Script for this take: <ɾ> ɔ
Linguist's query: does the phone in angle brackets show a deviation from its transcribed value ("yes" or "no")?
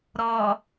no